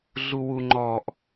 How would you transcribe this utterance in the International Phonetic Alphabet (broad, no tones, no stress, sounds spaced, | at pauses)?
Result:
ɮ u w u ŋ͡ǃ ɔ ʔ